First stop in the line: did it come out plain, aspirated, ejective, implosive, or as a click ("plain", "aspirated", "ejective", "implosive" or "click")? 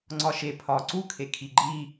click